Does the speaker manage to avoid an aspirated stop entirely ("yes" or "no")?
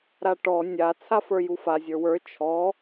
no